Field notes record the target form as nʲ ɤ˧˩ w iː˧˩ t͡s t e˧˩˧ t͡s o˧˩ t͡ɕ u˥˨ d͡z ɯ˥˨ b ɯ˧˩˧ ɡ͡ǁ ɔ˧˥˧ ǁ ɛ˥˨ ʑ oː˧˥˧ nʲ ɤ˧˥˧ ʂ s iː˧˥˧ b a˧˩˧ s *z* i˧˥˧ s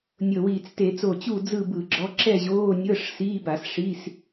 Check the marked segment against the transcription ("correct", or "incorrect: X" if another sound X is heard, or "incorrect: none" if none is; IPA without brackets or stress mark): incorrect: ʂ